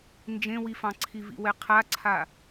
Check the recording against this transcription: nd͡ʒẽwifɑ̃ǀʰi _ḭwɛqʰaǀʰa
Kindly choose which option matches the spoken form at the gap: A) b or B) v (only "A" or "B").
B